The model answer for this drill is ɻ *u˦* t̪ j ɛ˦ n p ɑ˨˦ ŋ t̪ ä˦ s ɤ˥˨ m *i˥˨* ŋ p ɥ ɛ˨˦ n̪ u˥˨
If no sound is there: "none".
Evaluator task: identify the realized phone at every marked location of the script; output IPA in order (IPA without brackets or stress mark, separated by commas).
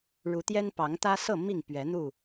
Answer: u˨˦, i˥˨